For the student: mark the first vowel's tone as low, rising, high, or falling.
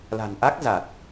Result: low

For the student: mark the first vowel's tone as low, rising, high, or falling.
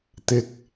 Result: low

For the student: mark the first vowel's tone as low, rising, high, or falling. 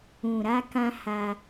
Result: low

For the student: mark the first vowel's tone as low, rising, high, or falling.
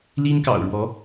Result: high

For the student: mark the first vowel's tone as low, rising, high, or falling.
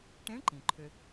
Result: rising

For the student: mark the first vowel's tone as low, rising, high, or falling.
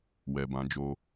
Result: low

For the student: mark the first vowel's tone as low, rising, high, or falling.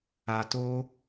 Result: low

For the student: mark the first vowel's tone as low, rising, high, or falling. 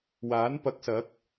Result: rising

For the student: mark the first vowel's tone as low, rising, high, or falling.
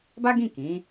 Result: high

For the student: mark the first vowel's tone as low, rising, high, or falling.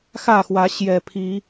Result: falling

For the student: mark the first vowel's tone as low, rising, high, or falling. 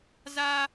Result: high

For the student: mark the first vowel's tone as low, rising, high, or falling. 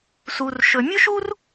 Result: low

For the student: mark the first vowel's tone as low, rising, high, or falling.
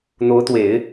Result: rising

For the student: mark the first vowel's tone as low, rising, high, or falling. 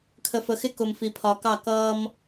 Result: low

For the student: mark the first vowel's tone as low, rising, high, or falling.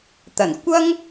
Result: low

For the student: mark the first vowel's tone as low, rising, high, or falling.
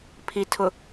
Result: low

